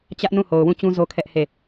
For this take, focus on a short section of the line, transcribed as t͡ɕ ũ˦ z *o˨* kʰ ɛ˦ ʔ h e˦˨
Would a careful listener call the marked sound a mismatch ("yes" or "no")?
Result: yes